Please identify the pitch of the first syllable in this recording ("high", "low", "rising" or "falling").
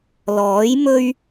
rising